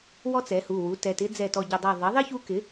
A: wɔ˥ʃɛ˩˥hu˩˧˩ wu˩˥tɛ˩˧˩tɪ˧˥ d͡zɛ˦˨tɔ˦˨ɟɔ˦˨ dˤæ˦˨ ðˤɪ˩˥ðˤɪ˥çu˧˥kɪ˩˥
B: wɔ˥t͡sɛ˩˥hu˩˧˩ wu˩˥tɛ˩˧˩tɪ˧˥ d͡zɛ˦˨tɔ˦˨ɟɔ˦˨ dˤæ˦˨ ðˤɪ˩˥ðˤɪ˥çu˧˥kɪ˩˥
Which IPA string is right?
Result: B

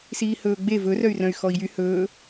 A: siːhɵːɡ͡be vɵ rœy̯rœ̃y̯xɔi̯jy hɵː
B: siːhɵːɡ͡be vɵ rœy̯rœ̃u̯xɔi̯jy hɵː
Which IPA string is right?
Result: A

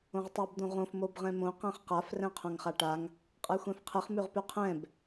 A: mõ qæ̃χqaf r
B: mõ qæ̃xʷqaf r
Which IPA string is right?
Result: A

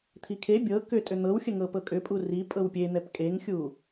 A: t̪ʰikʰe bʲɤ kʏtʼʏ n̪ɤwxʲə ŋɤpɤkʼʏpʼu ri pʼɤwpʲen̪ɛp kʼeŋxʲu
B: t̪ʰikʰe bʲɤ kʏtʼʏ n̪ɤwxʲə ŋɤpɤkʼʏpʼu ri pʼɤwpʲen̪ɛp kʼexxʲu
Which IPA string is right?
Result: A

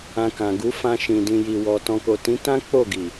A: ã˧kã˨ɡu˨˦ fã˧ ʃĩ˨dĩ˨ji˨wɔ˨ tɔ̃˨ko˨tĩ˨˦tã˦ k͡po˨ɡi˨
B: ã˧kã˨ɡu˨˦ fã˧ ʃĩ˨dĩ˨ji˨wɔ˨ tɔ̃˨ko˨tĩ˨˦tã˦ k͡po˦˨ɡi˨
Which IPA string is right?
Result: B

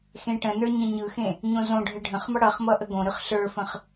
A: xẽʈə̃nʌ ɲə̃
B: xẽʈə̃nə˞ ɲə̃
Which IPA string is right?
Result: B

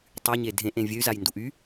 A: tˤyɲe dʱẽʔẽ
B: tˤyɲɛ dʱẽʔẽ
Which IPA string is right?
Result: A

